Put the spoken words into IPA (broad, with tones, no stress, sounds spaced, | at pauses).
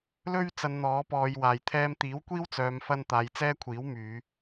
l ɵ˥ ɥ t͡s ɐ˨ n n̪ ɔː˨˥ p ɔː˨˧ j w aː˨˩ j t̪ʰ ɛː˧ m t̪ iː˨˥ w kʷ iː˥ w t͡s œː˨ m f ɐ˧ n t̪ aː˨ j t͡s ɛː˥ kʷʰ iː˨˥ w m yː˨˧